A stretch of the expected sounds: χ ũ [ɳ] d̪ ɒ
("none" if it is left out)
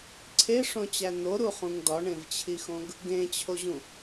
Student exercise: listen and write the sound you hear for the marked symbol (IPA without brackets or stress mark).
ŋ